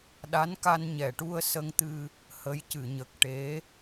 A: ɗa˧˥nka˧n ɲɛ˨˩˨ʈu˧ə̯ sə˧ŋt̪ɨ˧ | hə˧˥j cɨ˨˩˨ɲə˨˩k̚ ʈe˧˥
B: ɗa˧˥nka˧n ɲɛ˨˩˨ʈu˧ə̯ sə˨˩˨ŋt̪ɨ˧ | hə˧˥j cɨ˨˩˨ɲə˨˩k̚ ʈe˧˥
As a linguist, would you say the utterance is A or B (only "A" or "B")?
A